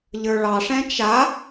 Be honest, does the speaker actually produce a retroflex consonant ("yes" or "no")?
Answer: yes